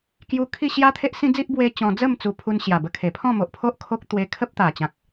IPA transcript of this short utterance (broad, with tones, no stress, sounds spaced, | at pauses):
k j u˧ kʰ i˥˧ ɕ j a˦ t̪ʰ e˦ ʔ s ĩ˦ d͡z i˦ ʔ b w e˦ t͡ɕ ɔ̃˧ d͡z ə˥˧ m t͡s u˨˩ pʰ u˧ n ɕ j a˨˩ b ə˧ kʰ e˨˩ pʰ ɔ̃˥˧ m o˨ ʔ pʰ o˦ ʔ kʰ o˦ k̚ t̪ w e˧ kʰ ə˦ p̚ t̪ a˨˩ t͡ɕ ã˨ k̚